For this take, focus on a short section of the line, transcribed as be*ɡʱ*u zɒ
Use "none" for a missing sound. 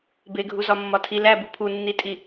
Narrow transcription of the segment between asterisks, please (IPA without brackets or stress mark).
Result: ɡʱ